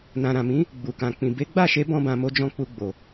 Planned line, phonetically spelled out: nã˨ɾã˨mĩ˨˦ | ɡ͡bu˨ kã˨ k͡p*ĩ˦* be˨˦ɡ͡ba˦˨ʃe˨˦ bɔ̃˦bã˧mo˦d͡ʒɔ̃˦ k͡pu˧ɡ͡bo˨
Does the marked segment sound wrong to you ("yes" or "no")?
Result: yes